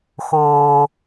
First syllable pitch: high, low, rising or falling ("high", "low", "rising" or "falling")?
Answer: low